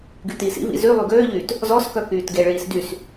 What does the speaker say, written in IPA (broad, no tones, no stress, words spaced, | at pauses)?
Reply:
ɡytiːsḭvḭ zy lˠyɡøːʎyːt | zɔskœ kyːtɡeɭiːs dys